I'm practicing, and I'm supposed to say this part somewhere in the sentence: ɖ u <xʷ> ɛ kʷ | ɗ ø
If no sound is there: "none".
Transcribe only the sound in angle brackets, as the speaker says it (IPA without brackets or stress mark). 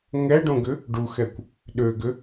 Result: x